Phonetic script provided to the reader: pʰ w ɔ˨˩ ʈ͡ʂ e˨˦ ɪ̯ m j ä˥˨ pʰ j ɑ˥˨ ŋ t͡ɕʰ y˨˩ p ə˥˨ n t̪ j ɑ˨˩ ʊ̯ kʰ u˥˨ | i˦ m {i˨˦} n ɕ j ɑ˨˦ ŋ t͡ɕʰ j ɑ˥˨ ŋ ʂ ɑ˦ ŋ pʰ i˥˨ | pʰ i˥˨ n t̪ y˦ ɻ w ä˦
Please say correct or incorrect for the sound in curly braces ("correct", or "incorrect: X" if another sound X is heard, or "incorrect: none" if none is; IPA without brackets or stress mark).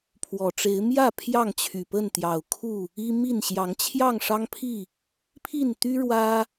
incorrect: i˥˨